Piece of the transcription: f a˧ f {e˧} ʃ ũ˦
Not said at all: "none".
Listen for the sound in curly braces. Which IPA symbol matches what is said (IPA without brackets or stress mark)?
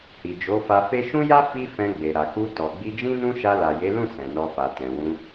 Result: e˦